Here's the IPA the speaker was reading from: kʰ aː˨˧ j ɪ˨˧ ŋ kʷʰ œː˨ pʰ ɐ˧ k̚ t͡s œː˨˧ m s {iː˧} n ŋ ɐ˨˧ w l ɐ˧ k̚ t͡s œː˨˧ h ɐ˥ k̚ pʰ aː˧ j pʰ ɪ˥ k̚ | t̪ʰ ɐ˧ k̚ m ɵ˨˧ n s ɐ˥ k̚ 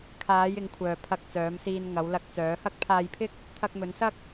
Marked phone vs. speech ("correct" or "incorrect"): correct